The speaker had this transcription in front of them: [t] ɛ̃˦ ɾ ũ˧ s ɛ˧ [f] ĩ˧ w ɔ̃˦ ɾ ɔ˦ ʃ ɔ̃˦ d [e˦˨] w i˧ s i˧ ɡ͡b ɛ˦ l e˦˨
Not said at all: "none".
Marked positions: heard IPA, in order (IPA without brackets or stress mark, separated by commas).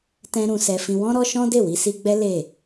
t, f, e˦˨